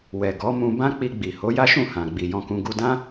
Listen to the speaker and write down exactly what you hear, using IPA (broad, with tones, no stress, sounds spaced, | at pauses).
w ɛ˨ ɡ ɔ˨˦ m ũ˧ b ã˦ k͡p i˧ ɡ͡b i˨ h o˨˦ j a˦ ʃ ũ˦˨ h ã˨ ɡ͡b i˨ j ɔ̃˧ k ũ˧ ɡ u˧ d ã˦